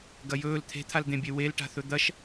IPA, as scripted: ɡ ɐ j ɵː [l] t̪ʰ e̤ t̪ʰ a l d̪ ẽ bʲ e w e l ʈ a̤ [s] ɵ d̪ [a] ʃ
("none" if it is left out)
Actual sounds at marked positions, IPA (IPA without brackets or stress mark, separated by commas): l, θ, ɐ